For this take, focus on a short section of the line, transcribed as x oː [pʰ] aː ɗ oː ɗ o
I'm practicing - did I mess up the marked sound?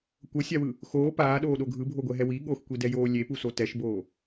yes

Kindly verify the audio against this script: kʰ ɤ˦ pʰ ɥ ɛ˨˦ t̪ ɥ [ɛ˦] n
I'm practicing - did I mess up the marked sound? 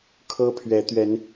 yes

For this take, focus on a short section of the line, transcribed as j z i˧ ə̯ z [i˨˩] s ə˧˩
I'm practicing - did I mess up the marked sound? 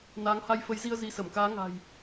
yes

